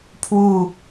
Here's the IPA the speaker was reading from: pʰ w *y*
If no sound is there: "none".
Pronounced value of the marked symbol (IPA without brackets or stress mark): u